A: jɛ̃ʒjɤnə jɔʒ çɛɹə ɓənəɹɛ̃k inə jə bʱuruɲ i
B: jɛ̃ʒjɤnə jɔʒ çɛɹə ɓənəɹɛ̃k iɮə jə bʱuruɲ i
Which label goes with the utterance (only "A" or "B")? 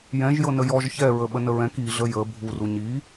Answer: B